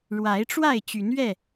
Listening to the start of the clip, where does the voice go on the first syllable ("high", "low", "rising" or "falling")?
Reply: rising